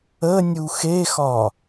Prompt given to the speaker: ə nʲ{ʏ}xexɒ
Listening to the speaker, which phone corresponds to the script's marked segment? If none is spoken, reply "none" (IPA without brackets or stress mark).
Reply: u